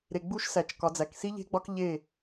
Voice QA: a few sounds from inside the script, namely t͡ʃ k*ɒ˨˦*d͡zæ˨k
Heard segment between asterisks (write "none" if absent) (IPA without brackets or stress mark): ɒ˨˦